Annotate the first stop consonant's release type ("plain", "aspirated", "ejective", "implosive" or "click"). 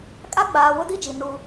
ejective